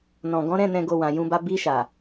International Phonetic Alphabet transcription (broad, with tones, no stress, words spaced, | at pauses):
nɔ̃˨ɡɔ̃˨˦ ɾɛ̃˦˨ nɛ̃˨ɡo˨ wã˨jũ˧ba˧ bi˧ ʃa˨